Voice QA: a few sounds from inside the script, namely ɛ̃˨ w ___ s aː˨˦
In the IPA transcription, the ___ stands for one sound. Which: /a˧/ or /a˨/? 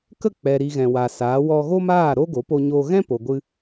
a˨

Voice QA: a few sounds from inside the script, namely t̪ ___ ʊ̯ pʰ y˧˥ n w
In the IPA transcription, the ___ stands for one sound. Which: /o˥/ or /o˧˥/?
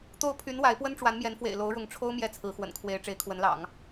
o˥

